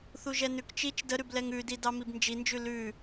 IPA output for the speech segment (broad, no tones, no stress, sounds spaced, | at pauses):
θ u ʒ ɛ n ʉ k t͡ʃ i t͡ʃ d ə ɾ ʉ b l ɛ ŋ ʉ d i d ɑ m i b n d͡ʒ i n d͡ʒ ʉ l ʉ